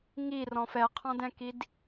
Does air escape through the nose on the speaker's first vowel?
no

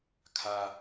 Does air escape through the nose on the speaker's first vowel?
no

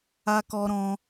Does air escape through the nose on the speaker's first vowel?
no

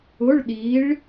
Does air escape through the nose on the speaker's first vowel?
no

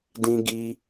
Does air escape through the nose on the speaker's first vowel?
yes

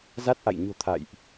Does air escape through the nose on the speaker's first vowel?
no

